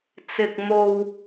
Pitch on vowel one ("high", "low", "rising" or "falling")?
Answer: low